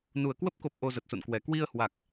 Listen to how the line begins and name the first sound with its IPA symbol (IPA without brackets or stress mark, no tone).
n